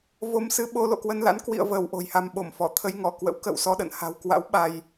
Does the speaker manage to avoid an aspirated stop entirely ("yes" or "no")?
no